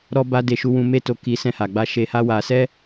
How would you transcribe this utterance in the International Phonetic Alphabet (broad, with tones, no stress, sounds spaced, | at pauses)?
ɾ ɔ˦ b a˦ d e˧ ʃ u˦ w ũ˦ m e˦ t o˧ k i˧ s ɛ̃˧ h a˨ ɡ͡b a˧ ʃ e˧ h a˦ w a˧ s ɛ˦